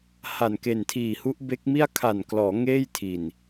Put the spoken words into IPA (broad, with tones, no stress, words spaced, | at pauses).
ha˨˩nke˨˩ntʰiː˨˩hu˦˥ʔ be˦˥k̚mi˥˩a̯ kʰa˨˩nklɔː˩˦ ŋeː˥˩jtʰi˨˩n